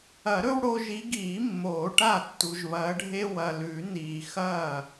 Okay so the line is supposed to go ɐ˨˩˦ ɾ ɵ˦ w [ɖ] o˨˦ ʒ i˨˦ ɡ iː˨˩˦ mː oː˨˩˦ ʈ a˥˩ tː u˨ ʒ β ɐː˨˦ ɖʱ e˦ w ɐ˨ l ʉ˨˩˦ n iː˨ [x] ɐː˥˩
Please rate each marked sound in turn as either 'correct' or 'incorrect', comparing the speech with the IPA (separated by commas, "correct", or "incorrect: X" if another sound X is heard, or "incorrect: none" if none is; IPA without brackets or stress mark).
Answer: incorrect: ɽ, correct